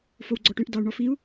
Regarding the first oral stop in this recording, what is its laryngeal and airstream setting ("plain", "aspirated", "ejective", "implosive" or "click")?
click